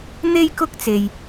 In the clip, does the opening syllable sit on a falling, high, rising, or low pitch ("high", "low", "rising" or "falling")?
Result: high